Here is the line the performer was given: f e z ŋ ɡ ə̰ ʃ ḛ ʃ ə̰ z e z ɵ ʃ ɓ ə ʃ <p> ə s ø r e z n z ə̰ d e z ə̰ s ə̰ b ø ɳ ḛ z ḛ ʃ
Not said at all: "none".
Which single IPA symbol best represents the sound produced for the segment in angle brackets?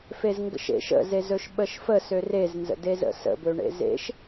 f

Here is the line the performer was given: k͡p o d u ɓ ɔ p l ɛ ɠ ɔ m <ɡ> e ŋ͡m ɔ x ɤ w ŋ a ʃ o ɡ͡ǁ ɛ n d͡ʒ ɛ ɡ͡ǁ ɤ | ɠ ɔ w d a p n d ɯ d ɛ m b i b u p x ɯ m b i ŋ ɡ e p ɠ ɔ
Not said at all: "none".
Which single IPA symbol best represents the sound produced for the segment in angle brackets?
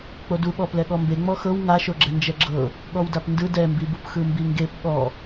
b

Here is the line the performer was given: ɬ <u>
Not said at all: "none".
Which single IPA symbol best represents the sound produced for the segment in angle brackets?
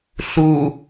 u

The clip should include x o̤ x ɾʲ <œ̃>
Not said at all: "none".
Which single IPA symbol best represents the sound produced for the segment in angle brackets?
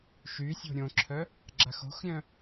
œ̃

